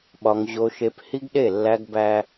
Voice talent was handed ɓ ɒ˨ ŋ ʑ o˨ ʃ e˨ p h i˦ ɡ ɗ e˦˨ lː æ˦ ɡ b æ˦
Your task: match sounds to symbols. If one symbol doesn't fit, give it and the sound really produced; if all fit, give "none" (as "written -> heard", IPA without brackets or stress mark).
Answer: none